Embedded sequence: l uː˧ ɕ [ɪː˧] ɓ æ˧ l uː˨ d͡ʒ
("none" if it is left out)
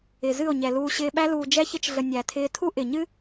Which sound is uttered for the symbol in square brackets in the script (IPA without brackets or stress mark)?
ɪː˧